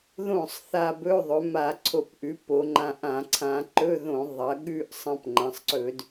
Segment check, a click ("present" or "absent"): present